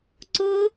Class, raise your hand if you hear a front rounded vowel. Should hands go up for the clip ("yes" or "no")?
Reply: no